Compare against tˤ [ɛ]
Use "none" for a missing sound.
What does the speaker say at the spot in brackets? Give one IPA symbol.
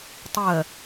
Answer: ɜ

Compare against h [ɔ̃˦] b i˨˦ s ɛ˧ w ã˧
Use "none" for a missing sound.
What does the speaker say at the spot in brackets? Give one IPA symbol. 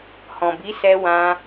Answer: ɔ̃˨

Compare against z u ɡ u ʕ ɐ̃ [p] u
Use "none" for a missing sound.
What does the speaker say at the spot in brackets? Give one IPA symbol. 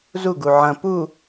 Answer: p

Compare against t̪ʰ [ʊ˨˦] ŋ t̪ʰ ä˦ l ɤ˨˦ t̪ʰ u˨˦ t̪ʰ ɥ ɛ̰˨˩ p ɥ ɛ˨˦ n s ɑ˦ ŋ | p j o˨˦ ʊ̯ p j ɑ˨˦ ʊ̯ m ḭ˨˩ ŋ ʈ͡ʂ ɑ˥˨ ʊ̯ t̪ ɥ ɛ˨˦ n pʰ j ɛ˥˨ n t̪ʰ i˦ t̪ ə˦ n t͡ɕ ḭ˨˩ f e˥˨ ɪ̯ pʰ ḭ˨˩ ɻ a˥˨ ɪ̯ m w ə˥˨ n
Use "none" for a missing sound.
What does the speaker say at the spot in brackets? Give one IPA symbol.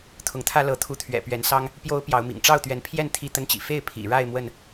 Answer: ʊ˨˦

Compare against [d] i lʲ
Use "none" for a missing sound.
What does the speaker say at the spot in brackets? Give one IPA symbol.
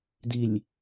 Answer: d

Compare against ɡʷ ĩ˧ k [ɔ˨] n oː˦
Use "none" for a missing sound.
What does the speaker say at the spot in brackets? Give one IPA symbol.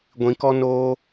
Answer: ɔ˦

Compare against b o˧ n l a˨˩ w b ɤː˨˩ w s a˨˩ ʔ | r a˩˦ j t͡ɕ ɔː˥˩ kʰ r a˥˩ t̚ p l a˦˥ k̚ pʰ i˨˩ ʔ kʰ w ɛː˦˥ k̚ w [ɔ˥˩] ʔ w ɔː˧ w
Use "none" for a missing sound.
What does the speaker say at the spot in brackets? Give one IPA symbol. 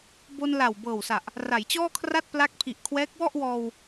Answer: ɔ˥˩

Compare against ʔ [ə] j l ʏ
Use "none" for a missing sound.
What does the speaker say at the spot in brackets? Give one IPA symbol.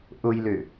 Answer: ʊ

